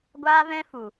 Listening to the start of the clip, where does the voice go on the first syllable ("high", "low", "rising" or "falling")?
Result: high